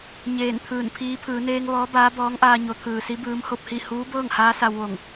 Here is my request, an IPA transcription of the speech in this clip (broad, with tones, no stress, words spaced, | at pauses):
ɲeː˧˩nt̪ʰɯː˧˩npʰiː˧˥ pʰɯː˩˧neː˧ŋ ʋɔː˧˥baː˧˥bɔː˧˥ŋʔaː˧ ɲo˩˧t̪ʰɯː˩si˧˥ bɯː˧˥mho˥˨p̚hi˥˨ huː˧˥bɤː˥˨ŋhaː˧˥ sa˧wʋo˧˩ŋ